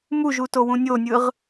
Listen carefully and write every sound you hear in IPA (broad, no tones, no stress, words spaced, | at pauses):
muʒutowũ nʲonʲɯʁ